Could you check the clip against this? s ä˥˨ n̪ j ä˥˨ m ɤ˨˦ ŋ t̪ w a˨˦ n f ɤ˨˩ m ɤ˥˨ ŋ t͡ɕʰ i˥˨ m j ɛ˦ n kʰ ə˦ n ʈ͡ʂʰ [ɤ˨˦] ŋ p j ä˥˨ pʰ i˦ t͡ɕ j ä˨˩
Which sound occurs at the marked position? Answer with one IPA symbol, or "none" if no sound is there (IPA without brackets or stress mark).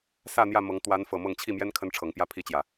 ɤ˨˦